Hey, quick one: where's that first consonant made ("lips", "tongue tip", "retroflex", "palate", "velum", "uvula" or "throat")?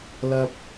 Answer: tongue tip